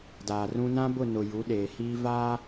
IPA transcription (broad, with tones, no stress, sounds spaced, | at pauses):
d aː˨ r ũ˦ n ã˦ b ʊ˦˨ n ʊ˨ j u˨˦ ɗ eː˨ h iː˦ v aː˦